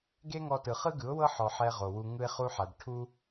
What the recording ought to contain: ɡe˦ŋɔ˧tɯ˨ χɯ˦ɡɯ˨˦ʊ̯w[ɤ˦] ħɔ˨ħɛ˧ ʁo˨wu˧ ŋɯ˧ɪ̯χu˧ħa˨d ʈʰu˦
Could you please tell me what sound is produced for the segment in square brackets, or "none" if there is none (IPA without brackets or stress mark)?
ɤ˦